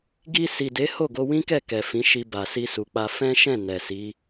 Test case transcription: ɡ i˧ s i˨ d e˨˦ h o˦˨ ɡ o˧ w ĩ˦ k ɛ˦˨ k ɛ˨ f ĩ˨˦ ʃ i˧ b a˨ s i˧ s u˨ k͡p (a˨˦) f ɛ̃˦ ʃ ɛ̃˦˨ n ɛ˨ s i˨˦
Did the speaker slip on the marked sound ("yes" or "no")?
yes